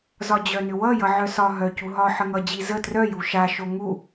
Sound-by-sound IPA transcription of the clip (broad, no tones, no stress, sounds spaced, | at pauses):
z ɒ d͡ʑ œ n ʏ w ʌ j ʌ ʕ œ s ɒ ɦ œ c u ɦ ɒ ħ ə ŋ ʌ d͡ʑ i z ə t r œ j u ʃ a ʃ o ŋ u